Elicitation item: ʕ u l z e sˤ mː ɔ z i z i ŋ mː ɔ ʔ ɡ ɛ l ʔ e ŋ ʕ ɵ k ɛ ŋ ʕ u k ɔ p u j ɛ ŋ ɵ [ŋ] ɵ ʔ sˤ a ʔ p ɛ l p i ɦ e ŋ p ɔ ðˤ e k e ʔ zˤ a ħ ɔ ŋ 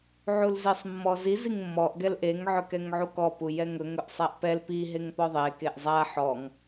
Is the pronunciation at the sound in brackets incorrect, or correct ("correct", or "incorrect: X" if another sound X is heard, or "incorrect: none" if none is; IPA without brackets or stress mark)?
correct